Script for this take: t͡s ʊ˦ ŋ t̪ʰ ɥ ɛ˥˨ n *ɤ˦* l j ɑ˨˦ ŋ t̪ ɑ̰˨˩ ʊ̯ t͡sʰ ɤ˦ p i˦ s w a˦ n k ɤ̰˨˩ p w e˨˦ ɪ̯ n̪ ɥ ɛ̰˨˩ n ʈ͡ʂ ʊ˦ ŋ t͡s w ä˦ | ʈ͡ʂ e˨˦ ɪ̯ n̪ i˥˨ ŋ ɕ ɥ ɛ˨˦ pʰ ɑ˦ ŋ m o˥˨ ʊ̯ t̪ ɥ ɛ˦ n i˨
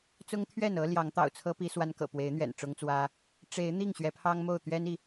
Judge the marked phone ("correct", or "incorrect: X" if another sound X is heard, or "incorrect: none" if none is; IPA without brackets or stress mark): correct